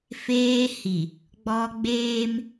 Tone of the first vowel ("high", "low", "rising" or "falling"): high